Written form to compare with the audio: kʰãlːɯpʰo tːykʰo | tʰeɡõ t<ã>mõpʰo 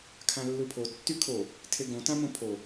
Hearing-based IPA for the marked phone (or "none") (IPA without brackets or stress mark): ã